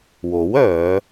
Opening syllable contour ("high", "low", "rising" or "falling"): rising